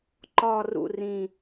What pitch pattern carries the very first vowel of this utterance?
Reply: low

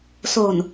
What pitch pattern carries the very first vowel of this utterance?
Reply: low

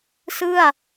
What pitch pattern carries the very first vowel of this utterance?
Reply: falling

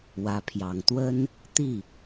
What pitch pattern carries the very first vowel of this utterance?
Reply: rising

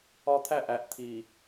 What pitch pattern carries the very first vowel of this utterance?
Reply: high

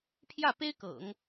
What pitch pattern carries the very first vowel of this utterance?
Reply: falling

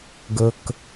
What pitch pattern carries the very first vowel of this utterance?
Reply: low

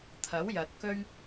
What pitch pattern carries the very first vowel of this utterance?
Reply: rising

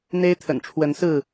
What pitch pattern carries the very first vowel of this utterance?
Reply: high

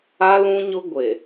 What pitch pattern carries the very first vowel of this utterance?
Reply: high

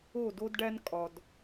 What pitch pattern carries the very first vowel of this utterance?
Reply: falling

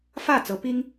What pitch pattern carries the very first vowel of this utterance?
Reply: falling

